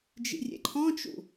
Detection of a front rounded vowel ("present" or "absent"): absent